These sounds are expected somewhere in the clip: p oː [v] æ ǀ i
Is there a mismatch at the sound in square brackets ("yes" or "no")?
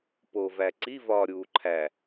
no